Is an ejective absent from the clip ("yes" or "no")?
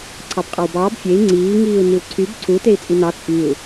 no